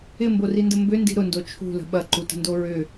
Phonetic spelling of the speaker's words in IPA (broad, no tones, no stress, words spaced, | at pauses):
ɪmborində mbʏndi̤ ɾʊndo t͡ʃʰṳlə̤ ɓɐǃutə̤ndo ɹʏ